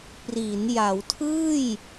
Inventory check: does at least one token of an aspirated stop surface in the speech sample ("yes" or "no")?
yes